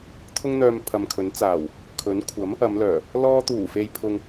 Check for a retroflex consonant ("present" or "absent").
absent